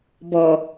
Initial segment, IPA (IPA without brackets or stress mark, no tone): b